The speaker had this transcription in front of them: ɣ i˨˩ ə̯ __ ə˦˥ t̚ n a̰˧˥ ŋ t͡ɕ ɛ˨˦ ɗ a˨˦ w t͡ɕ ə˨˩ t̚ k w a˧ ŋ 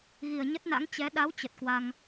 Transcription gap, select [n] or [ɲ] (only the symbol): ɲ